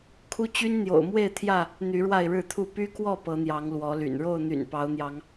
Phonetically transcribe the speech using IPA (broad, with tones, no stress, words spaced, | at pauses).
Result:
kʰu˦t͡ɕy˦nn̪jo̰˨˩ʊ̯mwe˥˨ɪ̯ t̪ʰjä˥˨ | n̪y˨˦ɻwa˥˨ɪ̯ɻɻ̩˥˨t̪ʰu˥˨ py˦kwɔ˥˨ pɤ˨˦n̪jɑ˨˦ŋ lwɔ˨˦ly̰˨˩n ɻo˥˨ʊ̯n̪y̰˨˩n pɑ˨˦ʊ̯n̪jɑ˨˦ŋ